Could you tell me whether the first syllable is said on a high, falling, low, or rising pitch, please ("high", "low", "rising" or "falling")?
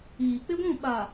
low